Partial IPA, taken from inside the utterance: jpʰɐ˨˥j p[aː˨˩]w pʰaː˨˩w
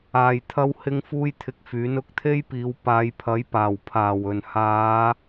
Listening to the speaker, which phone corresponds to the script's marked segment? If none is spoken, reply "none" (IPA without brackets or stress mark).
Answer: aː˨˩